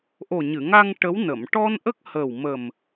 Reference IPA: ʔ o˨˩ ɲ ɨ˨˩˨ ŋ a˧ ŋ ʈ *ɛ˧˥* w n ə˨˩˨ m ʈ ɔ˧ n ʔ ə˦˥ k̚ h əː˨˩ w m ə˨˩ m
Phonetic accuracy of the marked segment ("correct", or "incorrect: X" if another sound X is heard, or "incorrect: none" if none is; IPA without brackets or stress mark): incorrect: ə˧˥